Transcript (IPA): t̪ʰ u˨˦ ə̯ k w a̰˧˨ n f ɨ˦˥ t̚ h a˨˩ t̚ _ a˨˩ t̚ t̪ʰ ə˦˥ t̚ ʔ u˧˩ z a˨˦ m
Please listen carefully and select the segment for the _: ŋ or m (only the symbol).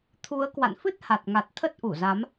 ŋ